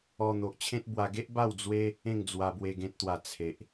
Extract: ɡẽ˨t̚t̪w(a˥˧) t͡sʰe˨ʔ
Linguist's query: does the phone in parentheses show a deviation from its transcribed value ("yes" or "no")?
yes